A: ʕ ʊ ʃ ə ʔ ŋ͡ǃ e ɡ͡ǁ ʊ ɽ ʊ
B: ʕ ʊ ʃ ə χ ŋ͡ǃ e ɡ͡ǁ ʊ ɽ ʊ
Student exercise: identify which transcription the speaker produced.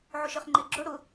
B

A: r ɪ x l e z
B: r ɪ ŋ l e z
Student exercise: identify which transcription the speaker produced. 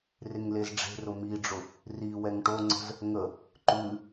B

